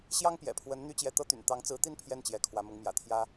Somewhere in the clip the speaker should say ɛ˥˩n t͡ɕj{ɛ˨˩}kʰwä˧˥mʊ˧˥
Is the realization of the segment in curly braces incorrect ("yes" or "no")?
yes